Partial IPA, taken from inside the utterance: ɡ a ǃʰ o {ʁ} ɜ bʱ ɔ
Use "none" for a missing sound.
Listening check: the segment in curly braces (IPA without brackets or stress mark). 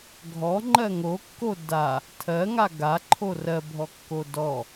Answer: r